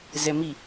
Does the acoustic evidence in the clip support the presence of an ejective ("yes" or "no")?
no